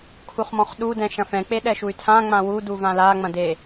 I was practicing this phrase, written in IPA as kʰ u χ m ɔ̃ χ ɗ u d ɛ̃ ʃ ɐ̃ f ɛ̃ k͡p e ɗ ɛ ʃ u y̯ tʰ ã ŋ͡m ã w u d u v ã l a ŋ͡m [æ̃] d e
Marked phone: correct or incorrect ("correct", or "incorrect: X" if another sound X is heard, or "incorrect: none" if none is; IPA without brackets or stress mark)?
incorrect: ɐ̃